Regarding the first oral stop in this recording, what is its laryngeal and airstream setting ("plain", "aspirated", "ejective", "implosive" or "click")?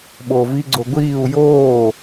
implosive